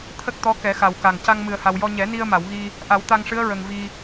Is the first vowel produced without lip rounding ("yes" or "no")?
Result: yes